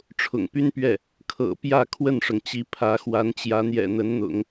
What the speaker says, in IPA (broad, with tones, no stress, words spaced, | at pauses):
ʈ͡ʂʰʊ̰˨˩ŋpy˥npɥɛ˥˩ | kʰɤ̰˨˩ pjä˥˧ kʰwə˥˩nʂɤ˩ŋt͡ɕi˧˥ pʰä˧˥xwa˧˥nt͡ɕjä˧˥ n̪jɛ̰˨˩n̪ə˧˥nn̪ʊ̰˨˩˦ŋ